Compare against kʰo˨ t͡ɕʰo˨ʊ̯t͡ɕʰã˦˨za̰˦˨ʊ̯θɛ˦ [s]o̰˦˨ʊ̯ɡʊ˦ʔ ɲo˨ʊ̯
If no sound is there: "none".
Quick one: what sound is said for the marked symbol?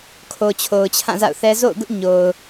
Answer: z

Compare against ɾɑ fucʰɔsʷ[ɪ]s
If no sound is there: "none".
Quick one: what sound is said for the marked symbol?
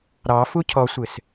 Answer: ɪ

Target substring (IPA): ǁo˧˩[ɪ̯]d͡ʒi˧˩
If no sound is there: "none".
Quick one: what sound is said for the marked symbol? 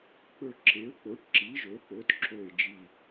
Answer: ɪ̯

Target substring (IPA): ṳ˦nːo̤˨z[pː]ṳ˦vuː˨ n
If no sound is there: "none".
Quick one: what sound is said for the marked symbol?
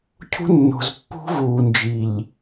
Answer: pː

